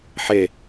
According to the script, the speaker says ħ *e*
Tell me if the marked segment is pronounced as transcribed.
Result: yes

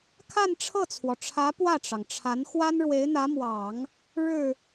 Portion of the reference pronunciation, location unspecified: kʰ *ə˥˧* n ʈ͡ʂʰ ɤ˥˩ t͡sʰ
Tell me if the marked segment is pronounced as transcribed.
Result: no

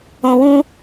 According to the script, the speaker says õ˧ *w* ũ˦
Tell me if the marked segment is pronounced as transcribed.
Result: yes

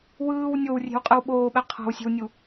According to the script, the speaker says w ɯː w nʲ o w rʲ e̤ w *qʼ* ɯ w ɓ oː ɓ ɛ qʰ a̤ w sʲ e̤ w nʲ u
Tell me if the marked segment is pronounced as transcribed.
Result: yes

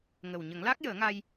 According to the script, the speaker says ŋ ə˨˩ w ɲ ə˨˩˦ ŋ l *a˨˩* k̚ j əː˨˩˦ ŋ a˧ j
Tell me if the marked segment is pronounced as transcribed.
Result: no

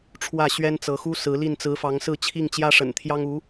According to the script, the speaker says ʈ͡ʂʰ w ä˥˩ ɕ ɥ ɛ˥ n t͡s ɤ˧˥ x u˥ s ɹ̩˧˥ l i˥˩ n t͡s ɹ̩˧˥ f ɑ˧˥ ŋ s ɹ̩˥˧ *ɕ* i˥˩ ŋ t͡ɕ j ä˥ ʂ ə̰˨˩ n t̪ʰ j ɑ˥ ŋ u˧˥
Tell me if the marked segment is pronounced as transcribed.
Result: no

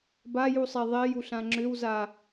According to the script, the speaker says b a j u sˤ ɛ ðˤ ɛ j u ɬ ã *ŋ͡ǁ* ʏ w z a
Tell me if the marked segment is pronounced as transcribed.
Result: yes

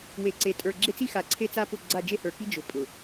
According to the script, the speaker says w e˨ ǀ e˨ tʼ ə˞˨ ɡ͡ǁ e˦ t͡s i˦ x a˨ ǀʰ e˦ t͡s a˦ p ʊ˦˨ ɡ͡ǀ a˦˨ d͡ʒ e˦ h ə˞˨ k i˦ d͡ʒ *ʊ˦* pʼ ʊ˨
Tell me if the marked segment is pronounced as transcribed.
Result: no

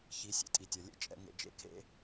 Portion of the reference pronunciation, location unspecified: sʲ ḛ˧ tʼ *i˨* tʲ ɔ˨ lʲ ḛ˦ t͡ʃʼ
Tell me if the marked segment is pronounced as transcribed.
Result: yes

